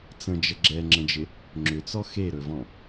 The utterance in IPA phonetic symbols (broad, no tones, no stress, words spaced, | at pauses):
t͡sə̃d͡ʒə ɡ͡ǁɛŋ͡ǁə̃d͡ʒɪ | ŋ͡ǁʏt͡sɔ xeɾɵvɔ̃